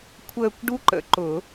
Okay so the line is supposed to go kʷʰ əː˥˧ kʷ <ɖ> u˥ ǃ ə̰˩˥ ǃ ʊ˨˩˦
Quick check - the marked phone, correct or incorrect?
correct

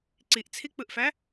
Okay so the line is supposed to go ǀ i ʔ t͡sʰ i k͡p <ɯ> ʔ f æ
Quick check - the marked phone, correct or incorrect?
correct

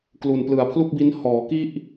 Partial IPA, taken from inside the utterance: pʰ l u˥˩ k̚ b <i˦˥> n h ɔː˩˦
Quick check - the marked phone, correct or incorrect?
correct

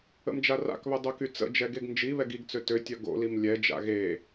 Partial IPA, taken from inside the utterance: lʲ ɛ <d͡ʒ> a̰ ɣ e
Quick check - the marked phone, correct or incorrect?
correct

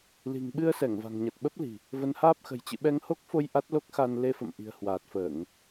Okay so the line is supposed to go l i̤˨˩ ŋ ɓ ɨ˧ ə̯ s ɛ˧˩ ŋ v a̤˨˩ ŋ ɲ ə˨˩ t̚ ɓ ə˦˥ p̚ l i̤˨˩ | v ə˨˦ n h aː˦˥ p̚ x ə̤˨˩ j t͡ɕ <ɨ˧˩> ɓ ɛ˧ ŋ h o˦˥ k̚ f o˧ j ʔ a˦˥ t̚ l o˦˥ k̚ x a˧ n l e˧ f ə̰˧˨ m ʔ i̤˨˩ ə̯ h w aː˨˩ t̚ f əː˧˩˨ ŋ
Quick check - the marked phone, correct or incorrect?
incorrect: ɨ̰˧˨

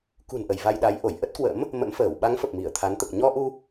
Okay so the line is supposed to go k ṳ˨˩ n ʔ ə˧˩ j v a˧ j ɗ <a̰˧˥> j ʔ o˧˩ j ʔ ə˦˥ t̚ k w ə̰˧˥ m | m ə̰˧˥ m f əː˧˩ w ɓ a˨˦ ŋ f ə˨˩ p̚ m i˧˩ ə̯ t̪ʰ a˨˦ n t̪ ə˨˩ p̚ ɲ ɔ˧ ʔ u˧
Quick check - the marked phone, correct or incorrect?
incorrect: a˨˦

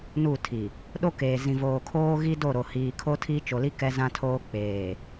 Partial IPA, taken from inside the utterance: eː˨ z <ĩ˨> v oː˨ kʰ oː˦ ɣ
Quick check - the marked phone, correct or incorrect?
correct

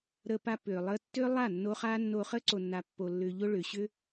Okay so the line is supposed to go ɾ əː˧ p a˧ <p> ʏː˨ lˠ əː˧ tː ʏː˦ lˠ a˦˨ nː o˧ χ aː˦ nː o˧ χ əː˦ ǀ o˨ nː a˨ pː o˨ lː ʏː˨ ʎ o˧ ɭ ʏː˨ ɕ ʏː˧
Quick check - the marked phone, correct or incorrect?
correct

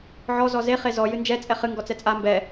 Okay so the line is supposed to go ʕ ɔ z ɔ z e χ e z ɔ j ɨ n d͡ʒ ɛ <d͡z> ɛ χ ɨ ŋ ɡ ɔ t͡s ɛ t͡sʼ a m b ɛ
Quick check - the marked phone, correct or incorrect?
incorrect: t͡sʼ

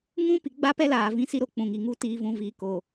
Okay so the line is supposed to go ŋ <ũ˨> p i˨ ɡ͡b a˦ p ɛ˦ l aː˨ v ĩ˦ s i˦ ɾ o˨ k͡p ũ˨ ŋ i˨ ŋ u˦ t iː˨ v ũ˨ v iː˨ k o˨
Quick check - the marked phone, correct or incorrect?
incorrect: ũ˦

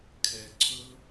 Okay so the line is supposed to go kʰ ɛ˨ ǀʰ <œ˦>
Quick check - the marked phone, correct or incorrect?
incorrect: ɵ˦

